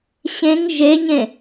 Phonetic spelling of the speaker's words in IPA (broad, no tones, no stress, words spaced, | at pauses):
ɕẽŋ ʒeɲẽ